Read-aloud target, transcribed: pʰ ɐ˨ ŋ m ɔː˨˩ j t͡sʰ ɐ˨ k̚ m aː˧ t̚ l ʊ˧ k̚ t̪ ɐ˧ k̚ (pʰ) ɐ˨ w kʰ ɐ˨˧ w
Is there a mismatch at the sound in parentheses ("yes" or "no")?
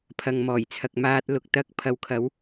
no